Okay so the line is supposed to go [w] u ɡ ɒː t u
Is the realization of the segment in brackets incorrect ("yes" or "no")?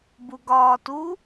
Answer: yes